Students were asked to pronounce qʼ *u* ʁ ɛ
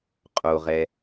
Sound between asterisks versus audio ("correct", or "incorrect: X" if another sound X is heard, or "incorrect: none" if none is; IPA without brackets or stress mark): incorrect: o